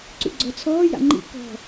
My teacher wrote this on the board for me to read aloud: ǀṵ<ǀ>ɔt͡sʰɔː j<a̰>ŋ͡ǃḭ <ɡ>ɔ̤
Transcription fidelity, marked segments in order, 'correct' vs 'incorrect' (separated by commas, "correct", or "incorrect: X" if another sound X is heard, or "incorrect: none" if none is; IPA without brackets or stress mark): incorrect: ɡ͡ǀ, correct, incorrect: k